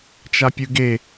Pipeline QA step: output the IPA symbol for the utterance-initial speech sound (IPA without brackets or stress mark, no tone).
t͡ʃ